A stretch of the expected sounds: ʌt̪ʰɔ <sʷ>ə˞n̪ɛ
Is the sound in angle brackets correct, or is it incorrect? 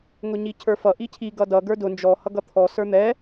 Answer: incorrect